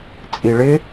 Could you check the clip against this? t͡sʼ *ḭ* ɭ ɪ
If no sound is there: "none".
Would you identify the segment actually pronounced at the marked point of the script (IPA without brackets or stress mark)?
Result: i